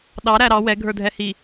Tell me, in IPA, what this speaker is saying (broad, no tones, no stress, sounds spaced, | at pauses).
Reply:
ɗ ɑ ɾ æ ɾ ɑ w ɛ ɡʱ ə˞ dʱ ɛ h i